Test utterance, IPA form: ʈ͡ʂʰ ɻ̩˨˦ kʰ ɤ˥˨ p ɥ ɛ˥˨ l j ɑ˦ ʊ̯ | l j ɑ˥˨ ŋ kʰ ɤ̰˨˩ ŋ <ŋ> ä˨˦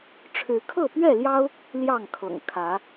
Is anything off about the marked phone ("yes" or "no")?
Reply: yes